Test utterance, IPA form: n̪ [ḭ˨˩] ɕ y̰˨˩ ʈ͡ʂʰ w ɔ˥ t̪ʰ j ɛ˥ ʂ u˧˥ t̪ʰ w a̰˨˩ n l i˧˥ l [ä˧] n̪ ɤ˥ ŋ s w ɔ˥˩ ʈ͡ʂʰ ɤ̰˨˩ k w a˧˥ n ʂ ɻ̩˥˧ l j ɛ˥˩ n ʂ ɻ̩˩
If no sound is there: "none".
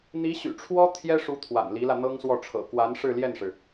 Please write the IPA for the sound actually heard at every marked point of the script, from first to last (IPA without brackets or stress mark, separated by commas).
i˧˥, ä˧